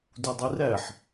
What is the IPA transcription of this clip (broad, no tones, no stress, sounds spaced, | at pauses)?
d u dˤ i r æ ħ